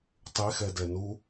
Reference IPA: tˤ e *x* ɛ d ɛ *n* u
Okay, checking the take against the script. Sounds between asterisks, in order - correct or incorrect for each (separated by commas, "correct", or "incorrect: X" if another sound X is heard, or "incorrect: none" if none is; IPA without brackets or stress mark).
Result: correct, correct